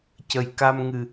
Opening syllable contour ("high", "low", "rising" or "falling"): low